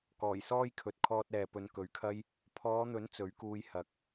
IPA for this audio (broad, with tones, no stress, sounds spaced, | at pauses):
k ɔː˨˩ j s ɔː˥ j kʰ ɵ˨˥ t̚ kʰ ɔː˧ t̚ ɛː˨ p ɵ˨˧ n k ɵ˨˧ ɥ kʰ ɐ˥ j | pʰ ɔː˨˧ n̪ ɵ˨˥ n t͡s ɵ˨˥ ɥ k uː˧ j h ɐ˨˥ k̚